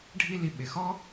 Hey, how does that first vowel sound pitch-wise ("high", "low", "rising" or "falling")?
high